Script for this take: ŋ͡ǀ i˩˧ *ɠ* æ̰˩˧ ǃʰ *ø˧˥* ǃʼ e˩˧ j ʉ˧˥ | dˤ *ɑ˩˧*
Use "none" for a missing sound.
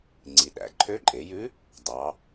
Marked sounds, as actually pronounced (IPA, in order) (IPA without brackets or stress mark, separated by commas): ɗ, ø˧˥, ɑ˩˧